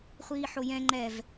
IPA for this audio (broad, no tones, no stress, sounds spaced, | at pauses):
χʷ iː ħ o j ɛ̃ ŋ͡ǃ ɛ v